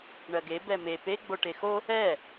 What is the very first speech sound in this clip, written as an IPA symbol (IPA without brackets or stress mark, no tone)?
ɳ